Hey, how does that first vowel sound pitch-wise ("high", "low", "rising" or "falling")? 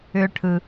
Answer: high